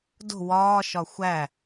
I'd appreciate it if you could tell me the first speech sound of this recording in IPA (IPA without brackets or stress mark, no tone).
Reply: d